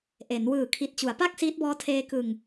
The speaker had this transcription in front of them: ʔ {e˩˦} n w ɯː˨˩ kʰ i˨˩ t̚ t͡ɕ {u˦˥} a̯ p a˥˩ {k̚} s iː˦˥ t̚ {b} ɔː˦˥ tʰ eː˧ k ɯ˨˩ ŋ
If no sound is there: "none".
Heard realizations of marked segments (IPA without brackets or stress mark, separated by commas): e˩˦, u˩˦, k̚, b